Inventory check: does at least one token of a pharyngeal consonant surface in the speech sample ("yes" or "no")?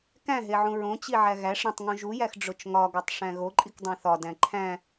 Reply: yes